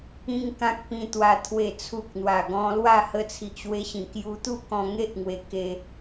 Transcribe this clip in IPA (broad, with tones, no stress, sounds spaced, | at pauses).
ĩ˦ ŋ k ã˦ k̚ p ĩ˧ t̪ w a˧ t̪ʰ w e˨˩ t͡sʰ u˨ k̚ n̪ w a˨˩ ɡ ɔ̃˧ l w a˥˧ h ə˧ t͡sʰ i˨ ʔ ɕ w e˧ ɕ ĩ˨˩ k j u˧ t̪ u˥˧ k ɔ̃˧ ŋ e˦ ʔ ŋ w e˧ k e˧